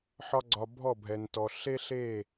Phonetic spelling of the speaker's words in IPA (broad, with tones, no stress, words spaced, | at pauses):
ħɒ˦ɡ͡ǀɒ˧bʱɔ˦˨ bʱɛ˨ntɔ˨ ɬe˦ɬe˦˨